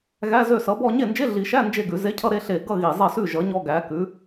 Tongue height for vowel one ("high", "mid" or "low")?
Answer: low